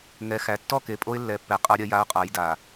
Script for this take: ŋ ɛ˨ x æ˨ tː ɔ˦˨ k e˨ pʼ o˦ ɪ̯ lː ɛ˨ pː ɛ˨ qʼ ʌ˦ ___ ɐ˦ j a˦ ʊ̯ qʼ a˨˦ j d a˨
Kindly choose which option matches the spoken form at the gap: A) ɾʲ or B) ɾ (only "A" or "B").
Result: A